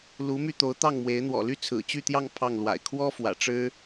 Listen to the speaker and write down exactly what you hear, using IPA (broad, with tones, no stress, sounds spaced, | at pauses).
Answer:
l u˧˥ m y˥˩ t̪ o˧˥ ʊ̯ t̪ ɑ˥˩ ŋ m w e˧˥ ɪ̯ n̪ w ɔ̰˨˩ l y˥˩ t͡sʰ ɹ̩˨˩ t͡ɕ y˥˧ t̪ j ɑ˥˧ ŋ pʰ ɑ˥˩ ŋ l w a̰˨˩ ɪ̯ kʰ w ɔ˥ f w ä̰˨˩ ʈ͡ʂ ɻ̩˥